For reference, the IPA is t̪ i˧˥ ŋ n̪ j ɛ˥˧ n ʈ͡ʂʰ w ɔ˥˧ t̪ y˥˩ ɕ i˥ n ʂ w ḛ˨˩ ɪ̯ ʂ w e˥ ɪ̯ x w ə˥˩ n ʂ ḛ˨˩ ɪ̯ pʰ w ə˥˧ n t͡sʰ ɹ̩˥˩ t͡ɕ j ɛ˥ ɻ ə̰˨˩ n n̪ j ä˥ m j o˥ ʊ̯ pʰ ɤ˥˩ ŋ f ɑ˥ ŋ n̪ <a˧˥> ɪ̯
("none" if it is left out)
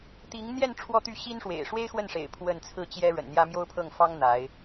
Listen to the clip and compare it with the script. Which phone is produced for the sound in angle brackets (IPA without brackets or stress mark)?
a˧˥